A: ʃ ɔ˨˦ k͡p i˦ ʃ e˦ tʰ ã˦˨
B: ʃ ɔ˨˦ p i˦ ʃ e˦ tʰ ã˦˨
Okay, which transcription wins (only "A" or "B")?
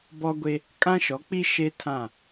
A